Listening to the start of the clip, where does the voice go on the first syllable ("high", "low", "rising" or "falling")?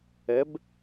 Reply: rising